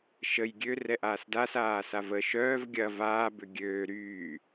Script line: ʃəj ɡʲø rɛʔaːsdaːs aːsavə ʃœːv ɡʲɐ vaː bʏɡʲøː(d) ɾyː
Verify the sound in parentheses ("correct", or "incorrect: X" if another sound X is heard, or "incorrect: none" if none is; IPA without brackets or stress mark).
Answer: incorrect: none